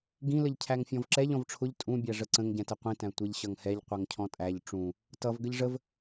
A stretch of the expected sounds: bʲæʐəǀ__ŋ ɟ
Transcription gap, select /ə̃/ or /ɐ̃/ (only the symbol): ə̃